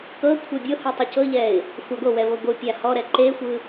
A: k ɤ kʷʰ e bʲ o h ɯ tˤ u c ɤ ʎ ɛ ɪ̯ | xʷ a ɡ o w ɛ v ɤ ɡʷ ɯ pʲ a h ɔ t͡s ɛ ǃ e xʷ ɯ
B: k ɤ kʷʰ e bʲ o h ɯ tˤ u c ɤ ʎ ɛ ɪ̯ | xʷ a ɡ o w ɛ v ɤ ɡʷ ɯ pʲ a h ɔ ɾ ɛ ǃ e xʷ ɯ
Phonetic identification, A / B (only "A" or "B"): B